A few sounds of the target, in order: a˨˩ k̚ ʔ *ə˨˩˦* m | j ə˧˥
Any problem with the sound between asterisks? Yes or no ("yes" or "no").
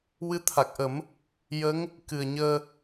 no